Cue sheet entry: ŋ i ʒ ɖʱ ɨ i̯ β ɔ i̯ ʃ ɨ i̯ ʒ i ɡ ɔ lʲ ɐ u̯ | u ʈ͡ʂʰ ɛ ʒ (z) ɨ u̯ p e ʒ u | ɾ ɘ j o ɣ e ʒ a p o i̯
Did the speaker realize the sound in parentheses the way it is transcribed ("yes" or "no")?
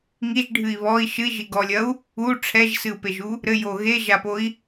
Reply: no